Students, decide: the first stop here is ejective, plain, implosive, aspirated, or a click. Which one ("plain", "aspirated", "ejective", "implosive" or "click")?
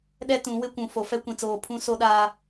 implosive